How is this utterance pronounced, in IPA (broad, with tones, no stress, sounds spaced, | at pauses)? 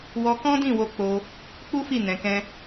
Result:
w ɔ˧ k ɔ̃˦ d ĩ˦˨ w o˧ k͡p o˧ | k͡p u˦ f i˦˨ n ɛ̃˧ k ɛ̃˦